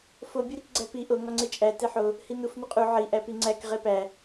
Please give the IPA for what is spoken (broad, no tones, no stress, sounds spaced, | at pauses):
f o bʲ u ɾ i k ɡ͡ǀ æ p i ʔ o ŋ ɒ ŋ͡ǀ e t͡ʃʼ æ t e ħ o | h i n u f n u qʼ u ʕ i ʔ æ p i ŋ͡ǀ æ k ʁ e p æ